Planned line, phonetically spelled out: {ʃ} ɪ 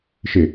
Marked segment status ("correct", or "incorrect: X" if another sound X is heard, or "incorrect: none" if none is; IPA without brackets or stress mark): correct